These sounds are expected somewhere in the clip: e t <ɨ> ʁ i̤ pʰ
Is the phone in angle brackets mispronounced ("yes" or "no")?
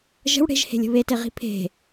yes